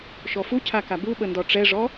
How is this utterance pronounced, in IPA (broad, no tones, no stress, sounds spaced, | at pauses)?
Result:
ʃ ɔ f u cʰ a k a b u ɓ ə n d ɔ ʈ͡ʂ ɛ ʐ ɔ